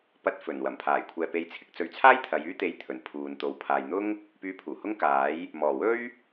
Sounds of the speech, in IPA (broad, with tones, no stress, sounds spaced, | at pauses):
p ɐ˧ t̚ f ɵ˨˩ n w ɐ˨˩ m pʰ aː˨˩ j kʷʰ ɛː˨ p e˨˧ j t͡sʰ ɪ˧ k̚ t͡s ɵ˨˧ ɥ t͡sʰ aː˥ j t̪ʰ ɐ˨˧ j yː˥ t̪ e˧ j t̪ʰ ɵ˨˩ n pʰ uː˨ n t̪ o˨ w pʰ aː˨ j n̪ ʊ˥ ŋ | p yː˧ pʰ uː˨˩ h ʊ˥ ŋ k aː˨˥ j | m ɔː˨˩ w ɵ˥ ɥ